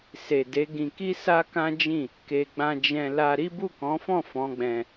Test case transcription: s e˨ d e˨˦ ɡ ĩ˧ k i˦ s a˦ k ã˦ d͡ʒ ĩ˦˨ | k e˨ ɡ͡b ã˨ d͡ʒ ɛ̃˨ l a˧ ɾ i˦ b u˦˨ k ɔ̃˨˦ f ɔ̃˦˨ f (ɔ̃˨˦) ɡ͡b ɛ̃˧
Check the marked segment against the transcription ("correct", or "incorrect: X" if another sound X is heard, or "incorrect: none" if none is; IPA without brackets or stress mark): correct